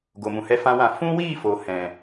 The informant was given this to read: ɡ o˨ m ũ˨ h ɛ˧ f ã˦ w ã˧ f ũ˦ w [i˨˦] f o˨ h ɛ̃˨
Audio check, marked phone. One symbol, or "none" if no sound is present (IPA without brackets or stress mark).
i˦˨